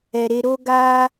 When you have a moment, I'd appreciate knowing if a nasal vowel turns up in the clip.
no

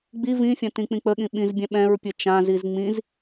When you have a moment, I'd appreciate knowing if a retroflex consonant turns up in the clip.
no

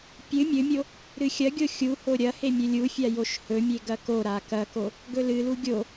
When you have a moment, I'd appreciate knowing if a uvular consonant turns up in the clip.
no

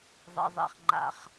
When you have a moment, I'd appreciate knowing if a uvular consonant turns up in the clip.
yes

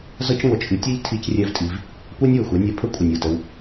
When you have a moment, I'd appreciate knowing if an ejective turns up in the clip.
yes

